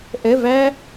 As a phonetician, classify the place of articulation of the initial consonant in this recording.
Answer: glottal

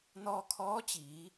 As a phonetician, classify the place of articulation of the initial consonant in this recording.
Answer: alveolar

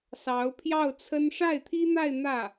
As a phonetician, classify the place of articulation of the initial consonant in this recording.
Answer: alveolar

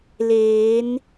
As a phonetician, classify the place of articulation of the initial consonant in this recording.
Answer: alveolar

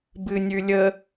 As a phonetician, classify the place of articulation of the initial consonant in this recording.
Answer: labial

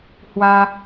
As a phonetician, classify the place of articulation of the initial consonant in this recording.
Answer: glottal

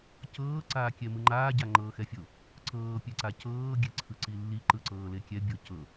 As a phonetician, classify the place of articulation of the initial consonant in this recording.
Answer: palatal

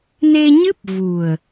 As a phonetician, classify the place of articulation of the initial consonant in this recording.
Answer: alveolar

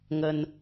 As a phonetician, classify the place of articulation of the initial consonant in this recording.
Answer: velar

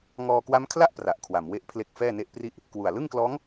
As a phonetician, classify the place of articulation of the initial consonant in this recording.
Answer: velar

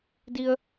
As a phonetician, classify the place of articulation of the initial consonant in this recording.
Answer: alveolar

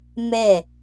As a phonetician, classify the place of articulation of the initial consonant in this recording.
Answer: labial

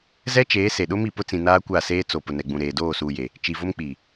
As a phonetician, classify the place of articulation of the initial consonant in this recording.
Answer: alveolar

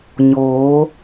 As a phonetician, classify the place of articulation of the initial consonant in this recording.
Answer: palatal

